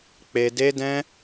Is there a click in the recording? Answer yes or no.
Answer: no